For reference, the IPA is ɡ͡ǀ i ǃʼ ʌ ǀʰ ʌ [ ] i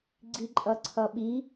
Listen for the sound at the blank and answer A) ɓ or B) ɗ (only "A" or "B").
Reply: A